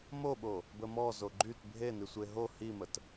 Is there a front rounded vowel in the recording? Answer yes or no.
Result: yes